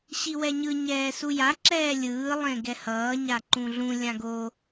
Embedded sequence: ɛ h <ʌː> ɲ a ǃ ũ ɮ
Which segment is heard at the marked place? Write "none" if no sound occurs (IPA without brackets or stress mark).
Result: ʌː